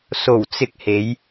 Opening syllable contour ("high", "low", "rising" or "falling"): low